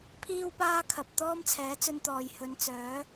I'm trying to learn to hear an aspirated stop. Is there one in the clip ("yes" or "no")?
yes